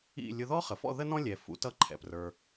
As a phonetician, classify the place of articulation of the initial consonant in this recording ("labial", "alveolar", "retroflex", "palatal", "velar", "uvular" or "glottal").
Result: alveolar